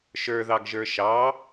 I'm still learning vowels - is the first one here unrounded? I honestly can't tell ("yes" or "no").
yes